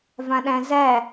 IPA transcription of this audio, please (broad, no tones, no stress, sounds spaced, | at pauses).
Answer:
v ã ɗ æ̃ z æ